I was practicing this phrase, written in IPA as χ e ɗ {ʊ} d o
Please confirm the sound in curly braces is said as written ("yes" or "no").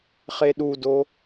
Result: no